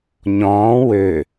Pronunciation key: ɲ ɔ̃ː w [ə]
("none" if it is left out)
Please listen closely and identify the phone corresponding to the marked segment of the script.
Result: ø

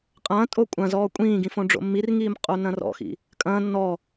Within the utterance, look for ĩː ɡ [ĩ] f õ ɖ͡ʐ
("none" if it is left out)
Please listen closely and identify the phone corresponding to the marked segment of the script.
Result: ĩ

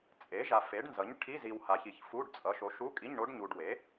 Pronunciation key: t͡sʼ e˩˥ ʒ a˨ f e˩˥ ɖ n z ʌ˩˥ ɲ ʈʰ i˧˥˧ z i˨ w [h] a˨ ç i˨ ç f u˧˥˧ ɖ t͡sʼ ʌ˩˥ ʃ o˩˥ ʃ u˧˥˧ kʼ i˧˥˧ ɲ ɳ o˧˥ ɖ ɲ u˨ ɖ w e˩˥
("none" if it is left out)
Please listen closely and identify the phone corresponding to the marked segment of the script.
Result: h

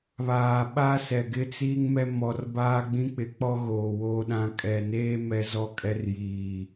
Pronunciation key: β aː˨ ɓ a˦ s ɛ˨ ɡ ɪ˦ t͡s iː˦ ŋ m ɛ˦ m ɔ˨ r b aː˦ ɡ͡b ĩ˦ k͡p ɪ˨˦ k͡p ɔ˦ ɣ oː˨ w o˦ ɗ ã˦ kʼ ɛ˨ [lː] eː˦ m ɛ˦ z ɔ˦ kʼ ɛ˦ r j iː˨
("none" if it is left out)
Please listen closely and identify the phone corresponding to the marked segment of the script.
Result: n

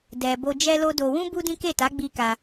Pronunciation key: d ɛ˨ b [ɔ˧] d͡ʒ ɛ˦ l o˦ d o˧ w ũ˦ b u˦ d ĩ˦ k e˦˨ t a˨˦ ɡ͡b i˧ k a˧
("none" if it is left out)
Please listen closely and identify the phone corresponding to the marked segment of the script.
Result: o˧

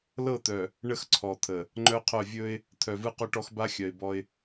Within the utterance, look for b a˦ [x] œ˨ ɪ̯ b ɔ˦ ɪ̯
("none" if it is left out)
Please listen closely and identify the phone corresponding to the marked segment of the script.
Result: xʲ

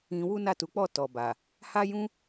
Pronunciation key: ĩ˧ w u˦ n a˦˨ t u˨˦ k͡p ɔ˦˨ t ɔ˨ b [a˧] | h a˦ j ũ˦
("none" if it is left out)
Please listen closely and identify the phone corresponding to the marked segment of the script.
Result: a˨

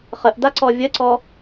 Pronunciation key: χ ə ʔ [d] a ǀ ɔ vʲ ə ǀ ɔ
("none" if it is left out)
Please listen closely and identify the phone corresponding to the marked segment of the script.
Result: d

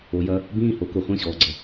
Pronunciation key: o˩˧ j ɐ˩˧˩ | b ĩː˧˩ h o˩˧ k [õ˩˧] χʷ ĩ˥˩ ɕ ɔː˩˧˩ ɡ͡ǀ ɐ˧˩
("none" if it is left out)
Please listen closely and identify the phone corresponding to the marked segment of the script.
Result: o˩˧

